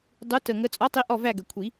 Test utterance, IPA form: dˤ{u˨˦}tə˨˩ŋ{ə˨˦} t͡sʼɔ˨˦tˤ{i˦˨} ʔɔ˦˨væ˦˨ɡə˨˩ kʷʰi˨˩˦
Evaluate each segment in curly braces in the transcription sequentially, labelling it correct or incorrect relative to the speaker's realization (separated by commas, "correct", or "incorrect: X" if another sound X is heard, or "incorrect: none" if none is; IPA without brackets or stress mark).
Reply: correct, correct, incorrect: i˨˦